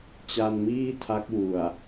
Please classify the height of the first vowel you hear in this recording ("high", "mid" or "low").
low